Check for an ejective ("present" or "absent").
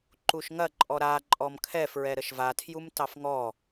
present